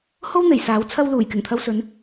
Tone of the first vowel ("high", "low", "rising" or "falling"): high